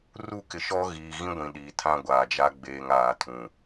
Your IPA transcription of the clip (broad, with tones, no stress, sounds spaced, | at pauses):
r u˦˨ k ɪ˨ ʃ ɔ˦ ɣ iː˨ ɣ ĩ˦ ɡʷ ĩ˨ ɗ i˨ tʰ ã˦ ɡʷ aː˨ d͡ʒ a˦ ɡ͡b eː˨ ŋ aː˨ tʰ ũ˨